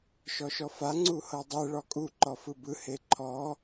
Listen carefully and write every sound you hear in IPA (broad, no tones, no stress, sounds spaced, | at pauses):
ʃ ɔ ʃ ɔ f a ŋ͡ǀ u h ɤ dˤ ɛ ɭ ɔ kʼ u ǃ ɔ f ɯ b ɯ h e ǃʰ ɔ